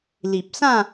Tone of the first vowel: low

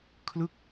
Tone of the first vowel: falling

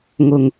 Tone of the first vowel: low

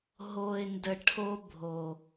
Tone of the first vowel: low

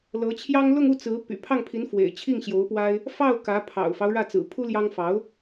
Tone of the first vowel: rising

